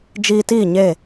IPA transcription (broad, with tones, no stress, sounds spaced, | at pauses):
d͡ʒ iː˧ t iː˦˨ ɲ eː˦˨